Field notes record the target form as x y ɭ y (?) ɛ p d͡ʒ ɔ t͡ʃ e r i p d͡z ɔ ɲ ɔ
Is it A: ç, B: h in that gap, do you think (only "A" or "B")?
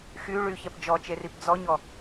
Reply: A